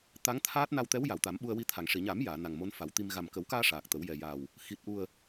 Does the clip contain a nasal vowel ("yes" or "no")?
no